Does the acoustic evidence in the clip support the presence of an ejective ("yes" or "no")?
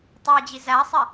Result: no